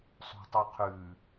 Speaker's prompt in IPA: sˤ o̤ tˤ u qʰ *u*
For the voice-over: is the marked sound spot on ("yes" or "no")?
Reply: no